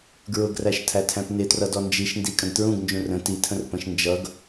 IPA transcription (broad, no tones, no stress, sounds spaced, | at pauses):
ɡ ɹ ʊ ɡ r æ ʃ tʰ æ tʰ æ̃ p n ɪ t r ʌ d ɔ n d͡ʒ i ʃ n d i kʼ ə̃ ɡ t ɹ ũ ɡ n d͡ʒ ũ r ə̃ t i tʰ ə̃ r p ə̃ ʃ n d͡ʒ ʌ ɡ